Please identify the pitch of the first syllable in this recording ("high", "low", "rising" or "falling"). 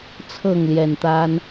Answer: falling